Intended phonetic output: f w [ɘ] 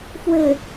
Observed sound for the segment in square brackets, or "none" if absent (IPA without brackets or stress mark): ɘ